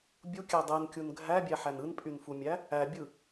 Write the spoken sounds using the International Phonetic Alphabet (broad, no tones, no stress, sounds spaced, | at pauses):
bʲ u kʲ æ dˤ e n kʲ u n ɡʱ æ bʲ æ ħ æ n ɯ n pʼ y n f u mʲ æ | æ bʲ ɯ